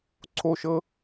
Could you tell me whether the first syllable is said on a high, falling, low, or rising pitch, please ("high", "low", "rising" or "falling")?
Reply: high